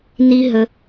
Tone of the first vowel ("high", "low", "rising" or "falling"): high